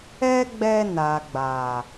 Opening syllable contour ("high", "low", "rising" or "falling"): high